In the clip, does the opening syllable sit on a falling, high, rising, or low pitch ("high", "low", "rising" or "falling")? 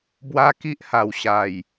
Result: high